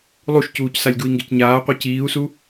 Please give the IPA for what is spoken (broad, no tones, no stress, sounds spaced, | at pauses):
lˠ u ʃ c uː c s a lʲ ɡ u i̯ ŋ ɡ e c ɲ aː qʷ ɛ c iː u̯ s u